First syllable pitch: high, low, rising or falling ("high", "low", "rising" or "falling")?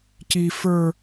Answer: high